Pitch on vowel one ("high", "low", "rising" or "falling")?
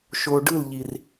low